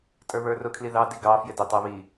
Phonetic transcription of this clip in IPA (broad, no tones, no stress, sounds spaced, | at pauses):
tʼ ə˞ β ə˞ r ʊ kʰ l i ð ɑ d i ɡ ɑ f j ɪ d ʊ tˤ æ β i